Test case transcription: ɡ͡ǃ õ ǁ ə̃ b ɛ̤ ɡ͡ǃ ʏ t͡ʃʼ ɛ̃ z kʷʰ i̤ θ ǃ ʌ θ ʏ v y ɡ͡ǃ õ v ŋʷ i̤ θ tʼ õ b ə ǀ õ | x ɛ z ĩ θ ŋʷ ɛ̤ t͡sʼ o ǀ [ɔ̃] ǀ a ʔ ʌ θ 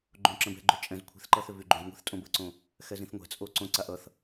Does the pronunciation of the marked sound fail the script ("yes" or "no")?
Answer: yes